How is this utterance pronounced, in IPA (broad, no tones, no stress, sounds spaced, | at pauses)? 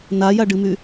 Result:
n a j a ɖ ɨ m y